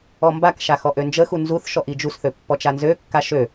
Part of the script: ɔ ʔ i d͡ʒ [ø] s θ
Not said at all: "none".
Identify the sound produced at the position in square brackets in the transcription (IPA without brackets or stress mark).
u